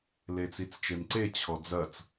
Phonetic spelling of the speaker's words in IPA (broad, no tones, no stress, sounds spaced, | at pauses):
l e t͡s i t͡s t͡ʃ e m ǀ e t͡ɕʰ ɔ d͡z ɐ t͡s